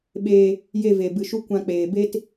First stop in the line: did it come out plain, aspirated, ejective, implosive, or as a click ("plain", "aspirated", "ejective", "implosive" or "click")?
implosive